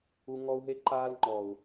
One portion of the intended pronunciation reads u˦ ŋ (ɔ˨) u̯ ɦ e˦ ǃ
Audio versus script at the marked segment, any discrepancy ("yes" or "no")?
yes